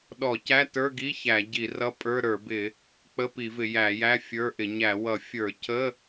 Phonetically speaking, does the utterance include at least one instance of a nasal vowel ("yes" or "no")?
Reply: no